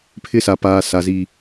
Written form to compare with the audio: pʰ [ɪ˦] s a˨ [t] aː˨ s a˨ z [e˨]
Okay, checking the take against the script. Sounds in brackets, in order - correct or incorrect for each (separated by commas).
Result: correct, incorrect, incorrect